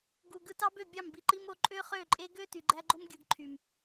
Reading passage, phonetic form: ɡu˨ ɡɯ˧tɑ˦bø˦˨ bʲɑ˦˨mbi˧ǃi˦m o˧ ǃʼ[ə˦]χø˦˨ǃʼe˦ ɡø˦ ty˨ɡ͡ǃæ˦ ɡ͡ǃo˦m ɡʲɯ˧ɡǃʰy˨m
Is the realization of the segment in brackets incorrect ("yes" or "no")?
yes